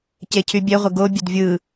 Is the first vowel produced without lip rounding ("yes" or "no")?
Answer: yes